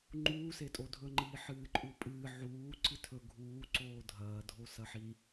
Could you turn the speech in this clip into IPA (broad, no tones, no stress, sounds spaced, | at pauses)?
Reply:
ŋ͡ǃ uː s e tʼ o dʱ ɵ ŋ͡ǃ iː ħ ɨː ǃʼ u pʼ ɨː ʕ uː ǀ ɨ tʰ ɵ ɡʱ uː ǀ oː dʱ ɐː dʱ o s ɐ ħ i